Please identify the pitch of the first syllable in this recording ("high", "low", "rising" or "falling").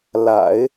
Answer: low